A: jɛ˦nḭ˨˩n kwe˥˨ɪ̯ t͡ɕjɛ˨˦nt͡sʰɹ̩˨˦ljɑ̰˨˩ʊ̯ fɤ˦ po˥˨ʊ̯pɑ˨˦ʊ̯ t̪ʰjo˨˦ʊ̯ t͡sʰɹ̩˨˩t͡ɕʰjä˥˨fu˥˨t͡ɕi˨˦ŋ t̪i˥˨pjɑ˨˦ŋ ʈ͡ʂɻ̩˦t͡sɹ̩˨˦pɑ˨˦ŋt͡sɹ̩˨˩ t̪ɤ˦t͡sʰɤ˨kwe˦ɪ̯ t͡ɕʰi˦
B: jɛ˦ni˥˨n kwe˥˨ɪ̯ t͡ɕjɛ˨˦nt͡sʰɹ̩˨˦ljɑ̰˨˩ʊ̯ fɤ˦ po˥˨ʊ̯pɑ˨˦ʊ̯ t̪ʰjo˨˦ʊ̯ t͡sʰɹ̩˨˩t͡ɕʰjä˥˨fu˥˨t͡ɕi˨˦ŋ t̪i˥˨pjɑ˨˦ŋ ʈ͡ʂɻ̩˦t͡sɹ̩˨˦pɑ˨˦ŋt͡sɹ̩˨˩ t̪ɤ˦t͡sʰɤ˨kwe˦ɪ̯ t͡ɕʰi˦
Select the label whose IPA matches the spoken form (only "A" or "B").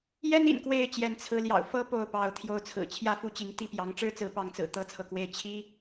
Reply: A